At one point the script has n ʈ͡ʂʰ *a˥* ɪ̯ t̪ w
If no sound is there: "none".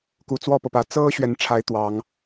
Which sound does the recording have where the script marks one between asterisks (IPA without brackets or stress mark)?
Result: a˧˥